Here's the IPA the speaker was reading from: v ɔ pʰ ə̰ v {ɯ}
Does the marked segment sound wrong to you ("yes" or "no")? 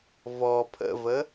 yes